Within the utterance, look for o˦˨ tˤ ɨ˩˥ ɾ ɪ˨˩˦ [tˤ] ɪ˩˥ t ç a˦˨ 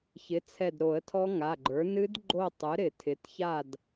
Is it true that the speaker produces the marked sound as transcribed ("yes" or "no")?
no